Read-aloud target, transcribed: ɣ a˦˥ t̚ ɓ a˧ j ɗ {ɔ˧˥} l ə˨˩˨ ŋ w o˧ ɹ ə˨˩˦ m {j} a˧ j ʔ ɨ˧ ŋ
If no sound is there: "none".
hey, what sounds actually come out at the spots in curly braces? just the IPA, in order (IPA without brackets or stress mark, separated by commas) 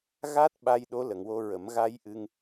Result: o˧˥, ɣ